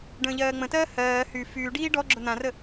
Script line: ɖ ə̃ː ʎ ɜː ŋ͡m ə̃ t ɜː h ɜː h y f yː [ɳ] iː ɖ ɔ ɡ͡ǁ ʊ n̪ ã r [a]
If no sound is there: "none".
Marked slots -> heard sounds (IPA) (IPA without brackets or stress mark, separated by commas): ɖ, ə